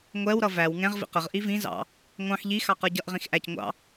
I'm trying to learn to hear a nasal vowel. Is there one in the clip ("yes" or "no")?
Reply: yes